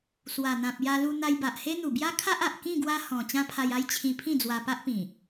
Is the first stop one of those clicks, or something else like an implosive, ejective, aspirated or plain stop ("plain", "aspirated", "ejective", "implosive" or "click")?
plain